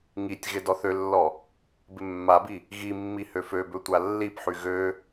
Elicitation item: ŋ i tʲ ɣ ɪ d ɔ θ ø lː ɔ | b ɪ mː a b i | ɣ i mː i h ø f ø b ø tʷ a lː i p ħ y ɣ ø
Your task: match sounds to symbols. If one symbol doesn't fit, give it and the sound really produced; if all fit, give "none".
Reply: none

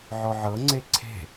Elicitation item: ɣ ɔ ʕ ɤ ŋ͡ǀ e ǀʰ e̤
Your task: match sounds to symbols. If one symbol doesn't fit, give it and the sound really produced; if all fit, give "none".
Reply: ɣ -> ʕ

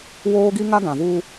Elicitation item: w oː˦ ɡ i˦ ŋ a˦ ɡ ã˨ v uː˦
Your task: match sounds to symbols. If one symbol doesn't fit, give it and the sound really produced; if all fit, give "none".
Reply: none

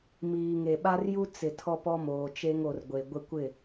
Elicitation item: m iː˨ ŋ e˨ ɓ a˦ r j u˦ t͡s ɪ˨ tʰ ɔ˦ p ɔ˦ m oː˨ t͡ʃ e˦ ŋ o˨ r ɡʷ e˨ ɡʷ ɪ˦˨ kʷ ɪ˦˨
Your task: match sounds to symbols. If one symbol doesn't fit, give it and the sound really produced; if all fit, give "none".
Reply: none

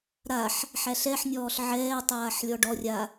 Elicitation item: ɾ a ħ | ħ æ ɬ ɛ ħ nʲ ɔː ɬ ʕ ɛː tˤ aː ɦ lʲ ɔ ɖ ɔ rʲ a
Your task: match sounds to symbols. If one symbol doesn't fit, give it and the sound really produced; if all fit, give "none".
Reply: ɦ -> ħ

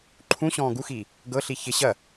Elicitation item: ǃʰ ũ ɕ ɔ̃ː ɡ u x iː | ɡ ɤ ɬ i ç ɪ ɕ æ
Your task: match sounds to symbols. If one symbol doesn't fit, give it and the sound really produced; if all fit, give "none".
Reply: æ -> ɐ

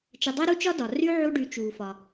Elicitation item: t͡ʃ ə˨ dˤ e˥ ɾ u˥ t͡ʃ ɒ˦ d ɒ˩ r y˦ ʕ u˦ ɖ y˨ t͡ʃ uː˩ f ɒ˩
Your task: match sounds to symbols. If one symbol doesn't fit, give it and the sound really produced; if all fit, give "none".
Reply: none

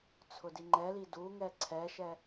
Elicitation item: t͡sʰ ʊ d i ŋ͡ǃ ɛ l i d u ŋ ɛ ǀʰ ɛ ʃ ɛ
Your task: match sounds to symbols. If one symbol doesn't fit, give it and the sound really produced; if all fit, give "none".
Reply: none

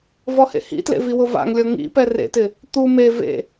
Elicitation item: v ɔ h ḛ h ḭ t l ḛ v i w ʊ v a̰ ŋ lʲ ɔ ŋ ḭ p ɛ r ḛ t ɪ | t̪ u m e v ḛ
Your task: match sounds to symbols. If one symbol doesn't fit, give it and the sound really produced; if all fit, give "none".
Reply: none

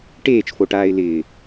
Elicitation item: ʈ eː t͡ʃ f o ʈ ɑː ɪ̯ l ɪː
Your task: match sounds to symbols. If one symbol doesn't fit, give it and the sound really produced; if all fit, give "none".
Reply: ɑː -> aː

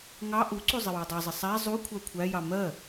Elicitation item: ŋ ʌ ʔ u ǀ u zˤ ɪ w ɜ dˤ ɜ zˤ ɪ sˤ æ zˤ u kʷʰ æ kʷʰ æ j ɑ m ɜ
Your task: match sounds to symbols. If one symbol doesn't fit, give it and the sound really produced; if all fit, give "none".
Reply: ʌ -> ɑ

